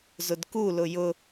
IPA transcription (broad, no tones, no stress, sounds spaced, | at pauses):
z ʊ d k u l ʊ j ʊ